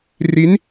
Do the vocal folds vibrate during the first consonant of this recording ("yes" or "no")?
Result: yes